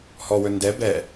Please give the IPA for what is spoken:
hɔwɵ ndɛ bɛ

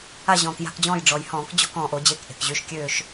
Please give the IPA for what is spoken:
a˦˨ʑɔ̃ː˩kja̤˦˨kd͡ʑɔ̃ː˦˨j ɖ͡ʐɔ˩jhɔ̃ː˧˩˧k d͡ʑɔ̤˦˨kɔ̃ː˩ʔo˧˩˧ d͡ʑe˩˧˩kʔe̤˩kʑy˩˧˩ʃ kʲøː˦˨ʃ

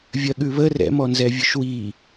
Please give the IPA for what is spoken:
vʲɜɠʉβə rɛ̰mɔnzɛvʲʉʃ wi

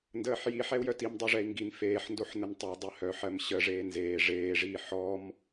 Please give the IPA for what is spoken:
ndəːħji ħɛu̯jœtim dˤɜʐɛi̯ŋɡin feːħndoħ nəntˤəu̯ dˤɜhœ ħɜmɕə ʐeːnzeː ʐeːʐiː ħɔm

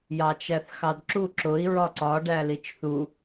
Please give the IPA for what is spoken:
jɑt͡ʃæθxɑdǁu ǁʊi̯ ɹɒǀɒ ɖælit͡ʃθu

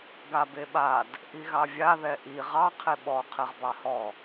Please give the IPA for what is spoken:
ɡabeɓad | ʔiɣɑvʲa ðɛʔi ʁɑ qʰeɓɔ qʰɛʁbɑhɔ

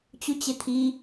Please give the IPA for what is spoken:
t͡ɕut͡ɕet̪ʰi

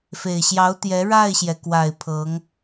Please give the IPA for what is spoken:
fe˨˩ɪ̯ɕjɑ˧˥ʊ̯t̪jɛ˧˥ ɻa˥˩ɪ̯ɕjɛ˩kwa˨˩ɪ̯ pʰɤ˧˥ŋ

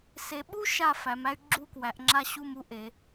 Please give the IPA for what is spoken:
se˨˦ɓu˥ ʃa˥˧fæ˨˦m æ˥y̯ ɡ͡ǁu˥˧kwæ˨˦ʔŋ͡ǁa˥ɕu˥˧m u˥ʔe˨˦

